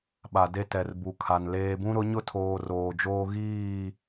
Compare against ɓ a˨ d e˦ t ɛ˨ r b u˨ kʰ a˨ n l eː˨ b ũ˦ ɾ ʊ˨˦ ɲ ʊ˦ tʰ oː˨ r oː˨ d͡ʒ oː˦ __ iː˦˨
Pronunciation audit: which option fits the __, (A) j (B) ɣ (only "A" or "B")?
B